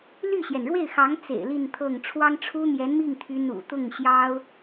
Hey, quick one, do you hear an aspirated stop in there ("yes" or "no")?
yes